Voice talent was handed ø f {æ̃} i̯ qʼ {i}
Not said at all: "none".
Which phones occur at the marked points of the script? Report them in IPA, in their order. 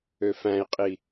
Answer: æ̃, i

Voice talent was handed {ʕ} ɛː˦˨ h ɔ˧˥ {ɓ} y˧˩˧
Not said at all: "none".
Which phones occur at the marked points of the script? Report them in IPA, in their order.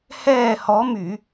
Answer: h, m

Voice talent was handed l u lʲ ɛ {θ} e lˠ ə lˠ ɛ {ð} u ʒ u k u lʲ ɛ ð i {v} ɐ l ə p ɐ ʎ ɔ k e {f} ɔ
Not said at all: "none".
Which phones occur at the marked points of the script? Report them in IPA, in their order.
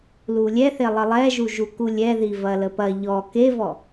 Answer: θ, ʒ, v, v

